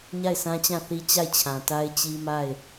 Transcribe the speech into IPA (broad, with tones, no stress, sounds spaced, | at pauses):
ɲ a˦˨ ɪ̯ sʰ ã˦ t͡ɕ ã˦˨ θ i˦ t͡ɕ a˦˨ ɪ̯ t͡ɕʰ ã˨ t a˦ ɪ̯ t͡ɕ i˦ m a˦˨ ɪ̯